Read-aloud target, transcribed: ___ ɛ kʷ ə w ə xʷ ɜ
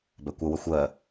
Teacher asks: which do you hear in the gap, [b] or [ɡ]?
b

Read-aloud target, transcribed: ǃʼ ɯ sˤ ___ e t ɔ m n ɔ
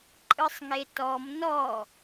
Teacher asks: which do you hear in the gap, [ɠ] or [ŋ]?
ŋ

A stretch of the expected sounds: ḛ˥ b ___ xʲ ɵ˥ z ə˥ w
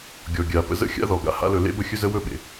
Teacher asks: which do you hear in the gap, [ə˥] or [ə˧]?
ə˥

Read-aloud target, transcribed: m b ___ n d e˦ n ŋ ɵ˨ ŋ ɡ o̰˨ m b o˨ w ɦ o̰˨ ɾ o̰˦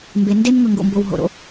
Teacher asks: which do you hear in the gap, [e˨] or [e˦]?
e˨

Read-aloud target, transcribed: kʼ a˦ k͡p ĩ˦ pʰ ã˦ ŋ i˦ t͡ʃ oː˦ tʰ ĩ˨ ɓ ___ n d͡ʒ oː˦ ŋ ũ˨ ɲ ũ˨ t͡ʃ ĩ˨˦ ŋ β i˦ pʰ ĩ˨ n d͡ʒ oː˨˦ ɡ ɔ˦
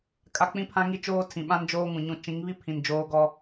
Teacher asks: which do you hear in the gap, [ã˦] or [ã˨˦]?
ã˦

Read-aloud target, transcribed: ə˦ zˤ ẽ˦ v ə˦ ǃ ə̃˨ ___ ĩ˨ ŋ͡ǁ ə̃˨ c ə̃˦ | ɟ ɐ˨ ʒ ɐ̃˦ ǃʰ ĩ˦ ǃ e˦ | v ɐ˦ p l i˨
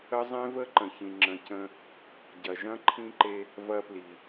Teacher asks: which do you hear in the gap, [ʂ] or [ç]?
ç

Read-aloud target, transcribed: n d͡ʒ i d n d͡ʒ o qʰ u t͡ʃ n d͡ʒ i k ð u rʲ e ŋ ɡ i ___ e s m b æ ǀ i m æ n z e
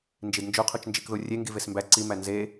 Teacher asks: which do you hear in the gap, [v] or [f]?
v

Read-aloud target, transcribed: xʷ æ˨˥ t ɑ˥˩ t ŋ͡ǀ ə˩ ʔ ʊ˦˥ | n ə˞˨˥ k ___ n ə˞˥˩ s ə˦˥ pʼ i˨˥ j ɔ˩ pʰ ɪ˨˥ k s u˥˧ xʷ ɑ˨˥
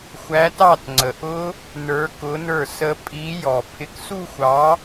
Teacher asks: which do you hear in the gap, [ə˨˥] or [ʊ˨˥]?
ʊ˨˥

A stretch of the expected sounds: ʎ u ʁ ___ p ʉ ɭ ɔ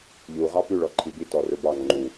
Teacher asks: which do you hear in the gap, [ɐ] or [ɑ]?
ɑ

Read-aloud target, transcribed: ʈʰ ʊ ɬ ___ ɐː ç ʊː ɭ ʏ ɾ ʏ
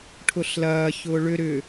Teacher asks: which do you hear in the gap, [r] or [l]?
l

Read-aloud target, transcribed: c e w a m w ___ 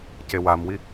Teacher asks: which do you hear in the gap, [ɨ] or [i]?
i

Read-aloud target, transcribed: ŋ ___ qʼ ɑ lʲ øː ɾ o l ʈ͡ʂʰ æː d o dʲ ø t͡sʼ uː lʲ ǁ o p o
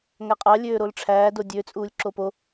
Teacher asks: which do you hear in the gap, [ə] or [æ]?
æ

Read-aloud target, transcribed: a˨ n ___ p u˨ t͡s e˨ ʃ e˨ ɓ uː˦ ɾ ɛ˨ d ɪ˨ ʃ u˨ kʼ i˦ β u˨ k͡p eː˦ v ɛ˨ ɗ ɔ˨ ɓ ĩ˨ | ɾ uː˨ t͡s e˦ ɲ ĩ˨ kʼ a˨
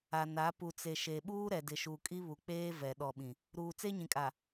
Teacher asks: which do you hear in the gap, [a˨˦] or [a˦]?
a˨˦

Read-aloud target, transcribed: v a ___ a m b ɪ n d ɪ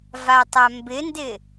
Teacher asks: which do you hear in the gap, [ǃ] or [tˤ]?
tˤ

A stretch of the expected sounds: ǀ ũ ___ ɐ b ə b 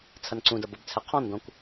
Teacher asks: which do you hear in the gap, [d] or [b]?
d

